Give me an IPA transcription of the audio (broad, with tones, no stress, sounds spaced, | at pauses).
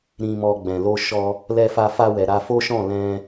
ɾ ĩ˨ m ɔ˨ ɡ͡b ɛ̃˨ l o˧ ʃ ɔ˧ | l ɛ˧ f a˧ f a˧ w ɛ˨ ɾ a˧ f o˦ ʃ ɔ̃˦˨ l ɛ̃˧